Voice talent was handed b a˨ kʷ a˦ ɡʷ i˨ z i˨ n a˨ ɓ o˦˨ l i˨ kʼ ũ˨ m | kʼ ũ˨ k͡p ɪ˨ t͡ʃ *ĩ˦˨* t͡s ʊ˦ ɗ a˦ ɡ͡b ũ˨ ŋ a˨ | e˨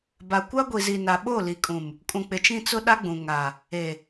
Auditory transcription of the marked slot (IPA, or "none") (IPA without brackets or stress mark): ĩ˦˨